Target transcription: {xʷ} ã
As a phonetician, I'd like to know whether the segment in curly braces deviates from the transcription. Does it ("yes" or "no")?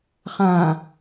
yes